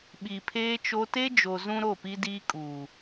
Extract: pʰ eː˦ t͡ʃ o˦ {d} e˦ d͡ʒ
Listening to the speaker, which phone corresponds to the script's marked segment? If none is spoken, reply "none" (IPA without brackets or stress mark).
t